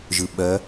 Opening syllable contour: low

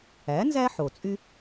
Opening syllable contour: rising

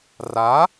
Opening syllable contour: rising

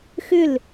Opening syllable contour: falling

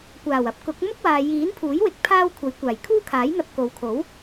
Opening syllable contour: low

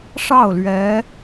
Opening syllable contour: falling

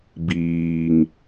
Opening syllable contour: low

